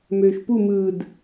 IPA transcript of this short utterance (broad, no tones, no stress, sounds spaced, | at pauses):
m øː ʃ p u m ɯː d